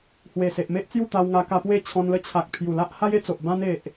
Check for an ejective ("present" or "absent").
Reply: absent